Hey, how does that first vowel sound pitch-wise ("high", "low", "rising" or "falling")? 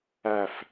falling